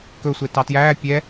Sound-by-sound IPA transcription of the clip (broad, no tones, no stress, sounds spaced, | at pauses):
k ɵ sʷ e t ɑ t j æː pʲ ɛ